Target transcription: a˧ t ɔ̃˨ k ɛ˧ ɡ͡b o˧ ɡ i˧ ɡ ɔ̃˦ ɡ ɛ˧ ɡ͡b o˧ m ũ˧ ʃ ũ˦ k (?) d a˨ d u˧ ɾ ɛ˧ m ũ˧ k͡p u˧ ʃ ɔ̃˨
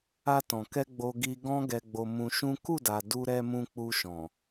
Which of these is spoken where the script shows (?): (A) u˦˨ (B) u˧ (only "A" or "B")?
A